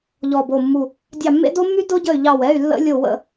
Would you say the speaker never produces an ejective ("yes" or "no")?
yes